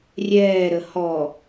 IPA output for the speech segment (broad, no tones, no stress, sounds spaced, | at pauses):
rʲ ɛː ɾ ə h ɔ